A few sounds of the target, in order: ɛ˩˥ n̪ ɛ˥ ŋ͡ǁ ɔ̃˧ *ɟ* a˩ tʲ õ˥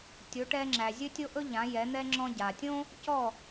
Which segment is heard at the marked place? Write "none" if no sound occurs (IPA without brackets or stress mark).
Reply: ɟ